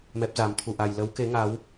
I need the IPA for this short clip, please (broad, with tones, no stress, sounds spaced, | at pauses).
m ɛ˦˥ p̚ z a˨˦ m t̪ʰ u˧ ʔ a˧ j l ə˨˦ w k e˨˦ ŋ a˨˦ w